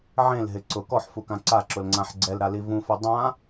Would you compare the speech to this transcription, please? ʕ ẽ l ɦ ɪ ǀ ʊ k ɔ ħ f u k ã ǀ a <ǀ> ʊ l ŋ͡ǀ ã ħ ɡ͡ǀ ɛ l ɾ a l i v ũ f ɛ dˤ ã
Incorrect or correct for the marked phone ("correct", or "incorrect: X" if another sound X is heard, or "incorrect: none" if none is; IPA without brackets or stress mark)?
incorrect: ǁ